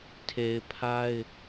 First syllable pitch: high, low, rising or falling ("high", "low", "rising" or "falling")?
low